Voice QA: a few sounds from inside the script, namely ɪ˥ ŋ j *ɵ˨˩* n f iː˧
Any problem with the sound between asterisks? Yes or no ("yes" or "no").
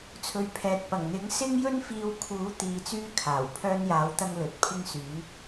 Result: yes